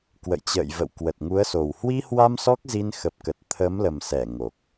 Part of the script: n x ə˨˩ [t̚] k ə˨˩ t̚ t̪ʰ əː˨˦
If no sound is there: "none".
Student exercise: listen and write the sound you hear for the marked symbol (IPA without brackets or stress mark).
p̚